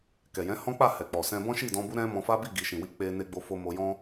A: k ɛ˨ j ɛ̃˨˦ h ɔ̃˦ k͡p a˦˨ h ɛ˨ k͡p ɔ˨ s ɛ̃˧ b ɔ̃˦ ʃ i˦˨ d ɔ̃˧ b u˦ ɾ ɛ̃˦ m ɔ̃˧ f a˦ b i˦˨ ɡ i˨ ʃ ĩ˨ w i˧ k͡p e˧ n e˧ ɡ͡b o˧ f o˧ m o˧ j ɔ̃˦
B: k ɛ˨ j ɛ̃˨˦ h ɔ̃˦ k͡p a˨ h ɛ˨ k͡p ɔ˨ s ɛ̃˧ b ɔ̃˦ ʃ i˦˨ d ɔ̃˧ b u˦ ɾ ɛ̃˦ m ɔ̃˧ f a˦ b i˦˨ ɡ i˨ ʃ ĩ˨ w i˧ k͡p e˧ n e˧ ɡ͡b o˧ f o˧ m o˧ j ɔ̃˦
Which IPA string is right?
A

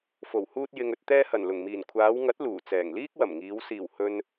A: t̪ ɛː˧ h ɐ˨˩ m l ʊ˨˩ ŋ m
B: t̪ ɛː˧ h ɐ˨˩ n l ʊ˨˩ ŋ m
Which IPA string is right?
B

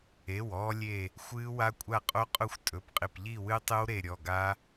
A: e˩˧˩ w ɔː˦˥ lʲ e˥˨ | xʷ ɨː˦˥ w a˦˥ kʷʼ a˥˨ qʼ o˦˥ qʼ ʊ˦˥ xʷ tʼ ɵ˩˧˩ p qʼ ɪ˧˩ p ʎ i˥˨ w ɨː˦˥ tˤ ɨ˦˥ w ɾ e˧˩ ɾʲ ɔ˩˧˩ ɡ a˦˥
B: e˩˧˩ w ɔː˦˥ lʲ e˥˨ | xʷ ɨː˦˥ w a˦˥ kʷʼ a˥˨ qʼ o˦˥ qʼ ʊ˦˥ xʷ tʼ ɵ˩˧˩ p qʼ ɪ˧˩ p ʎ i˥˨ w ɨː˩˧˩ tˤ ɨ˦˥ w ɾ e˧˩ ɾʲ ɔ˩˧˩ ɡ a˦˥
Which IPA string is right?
A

